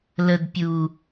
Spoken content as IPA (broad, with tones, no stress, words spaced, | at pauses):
lə˨d pʲu˨